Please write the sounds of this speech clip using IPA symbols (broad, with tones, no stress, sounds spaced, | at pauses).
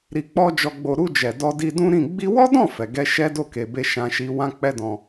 ɾ i˨ k͡p ɔ˧ d͡ʒ ɔ˨ ɡ͡b o˨ ɾ u˧ d͡ʒ ɛ˨ d ɔ˧ d i˧ d ũ˦ ɾ ĩ˦˨ ɡ͡b i˧ w ɔ˦ d ɔ̃˦˨ f ɛ˨ ɡ ɛ˧ ʃ ɛ˦ d o˦˨ k e˨ b e˧ ʃ ã˧ ʃ i˧ w ã˦ k͡p ɛ˦ d ɔ̃˧